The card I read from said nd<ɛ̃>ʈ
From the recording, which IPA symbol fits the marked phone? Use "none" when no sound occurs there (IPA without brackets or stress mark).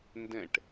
ɛ̃